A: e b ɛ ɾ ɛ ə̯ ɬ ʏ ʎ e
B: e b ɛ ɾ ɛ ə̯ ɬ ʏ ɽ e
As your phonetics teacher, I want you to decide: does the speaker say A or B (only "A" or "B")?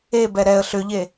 A